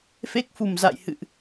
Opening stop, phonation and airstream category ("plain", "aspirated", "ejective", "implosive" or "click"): plain